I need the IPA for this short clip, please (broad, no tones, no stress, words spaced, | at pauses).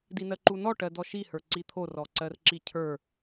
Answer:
dinɜǃunɔ ʈɜdɔʃi hə˞ǀit̪ʰo rɔǀɜrǁicʰə˞